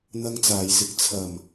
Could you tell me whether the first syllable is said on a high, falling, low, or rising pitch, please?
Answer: high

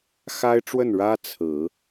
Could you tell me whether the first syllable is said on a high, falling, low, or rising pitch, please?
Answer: high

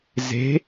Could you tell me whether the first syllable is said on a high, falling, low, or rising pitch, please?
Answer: rising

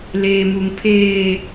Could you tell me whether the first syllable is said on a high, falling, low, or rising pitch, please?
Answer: high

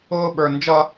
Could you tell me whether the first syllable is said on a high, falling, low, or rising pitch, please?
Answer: high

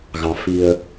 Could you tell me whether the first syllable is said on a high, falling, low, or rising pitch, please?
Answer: low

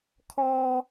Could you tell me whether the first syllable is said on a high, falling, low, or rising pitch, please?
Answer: high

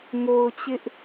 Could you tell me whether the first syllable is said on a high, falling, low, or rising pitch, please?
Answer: low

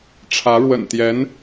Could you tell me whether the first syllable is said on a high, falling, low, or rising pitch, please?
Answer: rising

